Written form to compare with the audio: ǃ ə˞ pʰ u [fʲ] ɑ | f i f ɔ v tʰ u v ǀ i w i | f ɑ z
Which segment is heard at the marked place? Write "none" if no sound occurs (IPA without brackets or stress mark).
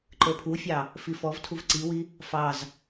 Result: fʲ